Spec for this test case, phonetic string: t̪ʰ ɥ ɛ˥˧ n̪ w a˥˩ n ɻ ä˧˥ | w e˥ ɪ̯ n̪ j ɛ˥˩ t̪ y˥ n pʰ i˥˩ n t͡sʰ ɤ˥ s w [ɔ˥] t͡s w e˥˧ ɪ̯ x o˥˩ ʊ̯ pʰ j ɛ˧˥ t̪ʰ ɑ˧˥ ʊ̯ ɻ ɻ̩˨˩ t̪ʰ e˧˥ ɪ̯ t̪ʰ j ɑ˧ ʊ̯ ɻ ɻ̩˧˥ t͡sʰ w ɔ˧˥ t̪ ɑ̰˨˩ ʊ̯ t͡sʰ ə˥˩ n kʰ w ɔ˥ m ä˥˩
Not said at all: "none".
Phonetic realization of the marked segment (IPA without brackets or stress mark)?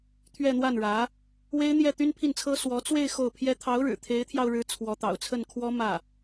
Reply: ɔ˧˥